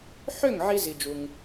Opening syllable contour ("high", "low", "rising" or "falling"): falling